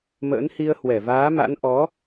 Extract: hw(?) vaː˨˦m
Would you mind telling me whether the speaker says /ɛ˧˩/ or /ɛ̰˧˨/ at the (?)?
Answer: ɛ˧˩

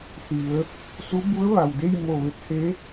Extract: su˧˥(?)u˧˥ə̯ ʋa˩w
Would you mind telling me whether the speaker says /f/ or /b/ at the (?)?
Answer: b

